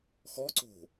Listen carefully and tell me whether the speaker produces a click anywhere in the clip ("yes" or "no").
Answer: yes